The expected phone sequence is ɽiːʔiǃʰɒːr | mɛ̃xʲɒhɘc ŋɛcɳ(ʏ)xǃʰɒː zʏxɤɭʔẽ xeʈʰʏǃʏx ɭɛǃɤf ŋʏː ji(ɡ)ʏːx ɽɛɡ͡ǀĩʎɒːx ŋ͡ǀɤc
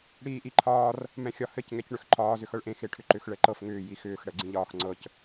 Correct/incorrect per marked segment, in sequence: correct, incorrect

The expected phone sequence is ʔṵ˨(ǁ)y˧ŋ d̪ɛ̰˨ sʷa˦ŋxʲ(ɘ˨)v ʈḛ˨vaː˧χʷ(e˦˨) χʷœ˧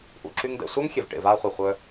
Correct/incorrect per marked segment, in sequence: correct, incorrect, incorrect

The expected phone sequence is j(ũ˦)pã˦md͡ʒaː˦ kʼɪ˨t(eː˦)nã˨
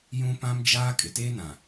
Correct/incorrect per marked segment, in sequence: correct, correct

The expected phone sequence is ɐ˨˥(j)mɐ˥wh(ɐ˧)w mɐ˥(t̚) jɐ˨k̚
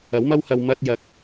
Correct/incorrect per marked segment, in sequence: incorrect, correct, correct

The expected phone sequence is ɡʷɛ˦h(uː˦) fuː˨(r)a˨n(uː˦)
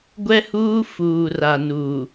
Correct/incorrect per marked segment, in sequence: correct, correct, incorrect

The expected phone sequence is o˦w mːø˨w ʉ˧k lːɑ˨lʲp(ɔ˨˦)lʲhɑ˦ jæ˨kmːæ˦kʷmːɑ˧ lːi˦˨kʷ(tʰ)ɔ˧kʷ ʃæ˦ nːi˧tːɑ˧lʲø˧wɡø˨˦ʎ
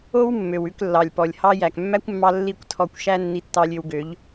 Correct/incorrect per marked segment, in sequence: incorrect, correct

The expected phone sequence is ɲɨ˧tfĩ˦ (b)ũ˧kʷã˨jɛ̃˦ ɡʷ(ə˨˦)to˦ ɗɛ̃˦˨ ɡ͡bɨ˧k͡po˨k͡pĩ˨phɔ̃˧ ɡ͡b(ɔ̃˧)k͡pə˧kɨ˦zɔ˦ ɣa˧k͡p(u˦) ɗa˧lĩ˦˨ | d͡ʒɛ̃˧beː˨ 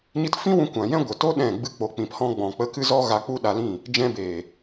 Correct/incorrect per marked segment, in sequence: incorrect, incorrect, incorrect, correct

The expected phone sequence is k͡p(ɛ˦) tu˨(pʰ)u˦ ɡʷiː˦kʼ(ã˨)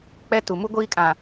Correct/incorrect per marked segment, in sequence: correct, incorrect, correct

